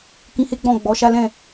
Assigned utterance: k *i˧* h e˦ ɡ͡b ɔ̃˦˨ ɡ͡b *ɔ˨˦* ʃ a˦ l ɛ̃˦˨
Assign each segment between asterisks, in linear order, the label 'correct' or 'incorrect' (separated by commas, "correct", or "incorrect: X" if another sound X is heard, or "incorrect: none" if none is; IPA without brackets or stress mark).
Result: incorrect: ĩ˧, correct